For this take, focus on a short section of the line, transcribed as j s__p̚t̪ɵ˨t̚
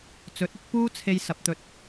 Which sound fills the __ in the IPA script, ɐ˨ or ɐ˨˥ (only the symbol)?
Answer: ɐ˨